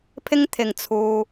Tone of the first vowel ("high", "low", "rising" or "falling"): high